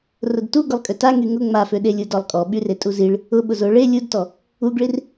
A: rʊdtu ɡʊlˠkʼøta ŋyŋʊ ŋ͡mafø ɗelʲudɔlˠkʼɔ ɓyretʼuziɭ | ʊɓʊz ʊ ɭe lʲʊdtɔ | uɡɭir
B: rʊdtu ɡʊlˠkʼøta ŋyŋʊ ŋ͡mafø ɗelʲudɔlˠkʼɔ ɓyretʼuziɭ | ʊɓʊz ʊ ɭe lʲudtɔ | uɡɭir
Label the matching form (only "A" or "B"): B